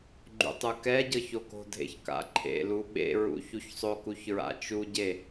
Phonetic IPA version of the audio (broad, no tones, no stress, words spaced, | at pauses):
ɡ͡ǃṵtˤukɛɟɤç oko̤dʱḛç ka̰ǃʰḛlu ɓḛɹṵ çuçsˤokuç ɹa̰t͡ʃuɟe